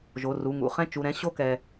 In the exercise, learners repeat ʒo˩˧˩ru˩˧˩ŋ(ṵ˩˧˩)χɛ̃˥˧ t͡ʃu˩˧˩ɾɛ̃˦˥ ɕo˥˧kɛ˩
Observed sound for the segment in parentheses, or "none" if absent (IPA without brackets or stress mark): ṵ˩˧˩